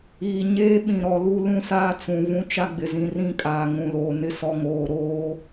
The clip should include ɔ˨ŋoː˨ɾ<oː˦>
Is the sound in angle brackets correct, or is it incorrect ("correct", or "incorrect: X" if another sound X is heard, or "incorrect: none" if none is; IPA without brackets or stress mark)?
correct